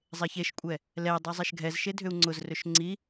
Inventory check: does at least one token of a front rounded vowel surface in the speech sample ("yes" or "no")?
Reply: yes